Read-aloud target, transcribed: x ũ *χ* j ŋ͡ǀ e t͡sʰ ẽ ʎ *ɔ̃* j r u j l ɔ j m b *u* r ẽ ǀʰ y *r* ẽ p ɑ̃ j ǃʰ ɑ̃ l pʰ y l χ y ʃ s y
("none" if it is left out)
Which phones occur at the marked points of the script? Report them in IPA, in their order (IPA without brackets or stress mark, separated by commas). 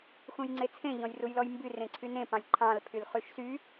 none, ɔ̃, y, n